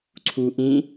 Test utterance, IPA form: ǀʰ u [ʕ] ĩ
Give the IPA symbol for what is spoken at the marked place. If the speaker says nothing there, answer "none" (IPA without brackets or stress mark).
ʔ